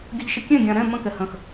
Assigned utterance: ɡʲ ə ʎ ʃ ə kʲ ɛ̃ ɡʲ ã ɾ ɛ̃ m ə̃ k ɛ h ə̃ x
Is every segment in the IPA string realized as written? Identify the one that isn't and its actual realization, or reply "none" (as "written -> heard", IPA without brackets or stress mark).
none